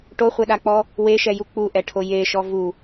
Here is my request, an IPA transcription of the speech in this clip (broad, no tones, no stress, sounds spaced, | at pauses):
ʈ o χʷ ɛ ɗ a k͡p ɔ | w e ʃ ɛ j u k͡p u ʔ ɛ ʈʰ o j e ʃ ɔ v u